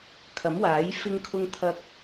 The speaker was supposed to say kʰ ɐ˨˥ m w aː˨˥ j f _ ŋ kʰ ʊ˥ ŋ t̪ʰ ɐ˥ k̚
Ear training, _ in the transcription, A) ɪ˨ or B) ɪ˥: B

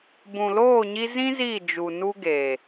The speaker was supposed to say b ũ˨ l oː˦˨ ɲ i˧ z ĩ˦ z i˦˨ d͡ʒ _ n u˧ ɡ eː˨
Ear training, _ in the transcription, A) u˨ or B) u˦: A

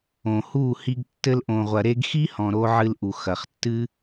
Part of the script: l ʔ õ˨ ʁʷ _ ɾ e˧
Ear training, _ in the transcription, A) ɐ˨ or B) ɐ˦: A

